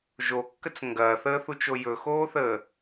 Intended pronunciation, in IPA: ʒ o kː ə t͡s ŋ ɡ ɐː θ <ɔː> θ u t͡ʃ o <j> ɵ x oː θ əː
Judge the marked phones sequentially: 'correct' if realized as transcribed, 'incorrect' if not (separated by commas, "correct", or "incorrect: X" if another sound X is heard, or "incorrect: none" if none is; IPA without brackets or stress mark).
incorrect: əː, correct